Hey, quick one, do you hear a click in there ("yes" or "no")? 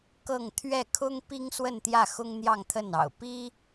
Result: no